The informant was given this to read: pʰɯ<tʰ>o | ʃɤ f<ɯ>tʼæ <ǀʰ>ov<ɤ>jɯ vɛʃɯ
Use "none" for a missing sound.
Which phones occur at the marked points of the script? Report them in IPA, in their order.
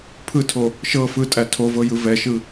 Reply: tʰ, ɯ, tʰ, ɤ

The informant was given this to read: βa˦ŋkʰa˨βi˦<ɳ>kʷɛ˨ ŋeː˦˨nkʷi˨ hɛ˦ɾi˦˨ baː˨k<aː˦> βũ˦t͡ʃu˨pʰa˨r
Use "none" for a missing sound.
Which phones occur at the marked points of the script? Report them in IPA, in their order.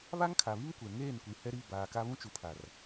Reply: ŋ, a˦

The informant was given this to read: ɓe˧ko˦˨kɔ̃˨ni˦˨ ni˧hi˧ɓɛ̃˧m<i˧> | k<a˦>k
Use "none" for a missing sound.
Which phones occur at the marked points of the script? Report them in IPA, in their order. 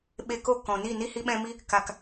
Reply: i˧, a˨

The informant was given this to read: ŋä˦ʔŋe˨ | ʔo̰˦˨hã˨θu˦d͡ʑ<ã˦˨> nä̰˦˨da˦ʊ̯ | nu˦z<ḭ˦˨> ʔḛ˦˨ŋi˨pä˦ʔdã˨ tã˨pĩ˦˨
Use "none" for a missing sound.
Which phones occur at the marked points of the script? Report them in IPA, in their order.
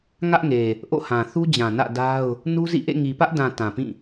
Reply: ã˨, ḭ˦˨

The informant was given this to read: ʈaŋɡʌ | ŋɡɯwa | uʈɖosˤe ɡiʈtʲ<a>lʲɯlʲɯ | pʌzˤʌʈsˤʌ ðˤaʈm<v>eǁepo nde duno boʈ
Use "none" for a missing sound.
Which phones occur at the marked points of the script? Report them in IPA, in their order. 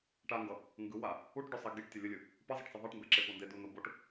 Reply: ʌ, b

